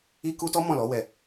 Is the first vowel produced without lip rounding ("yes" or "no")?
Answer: yes